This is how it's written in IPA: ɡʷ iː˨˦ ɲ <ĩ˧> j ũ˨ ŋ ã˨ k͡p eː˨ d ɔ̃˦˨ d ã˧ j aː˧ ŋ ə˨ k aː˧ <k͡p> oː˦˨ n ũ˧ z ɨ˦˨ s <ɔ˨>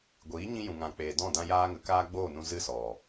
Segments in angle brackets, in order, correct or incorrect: correct, incorrect: ɡ͡b, correct

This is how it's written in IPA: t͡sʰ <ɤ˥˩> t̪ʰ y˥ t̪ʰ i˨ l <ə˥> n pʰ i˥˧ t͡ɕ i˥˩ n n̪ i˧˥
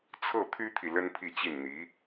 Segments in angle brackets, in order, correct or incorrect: correct, correct

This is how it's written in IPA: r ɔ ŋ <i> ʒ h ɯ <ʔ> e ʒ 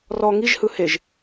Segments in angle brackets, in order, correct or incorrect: correct, incorrect: h

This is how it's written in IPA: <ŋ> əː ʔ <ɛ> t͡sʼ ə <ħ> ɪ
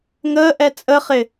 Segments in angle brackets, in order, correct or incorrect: correct, correct, incorrect: χ

